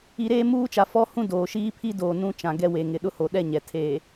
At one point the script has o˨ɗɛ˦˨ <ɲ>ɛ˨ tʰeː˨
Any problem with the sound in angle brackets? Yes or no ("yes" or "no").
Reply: no